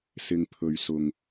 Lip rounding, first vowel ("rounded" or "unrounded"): unrounded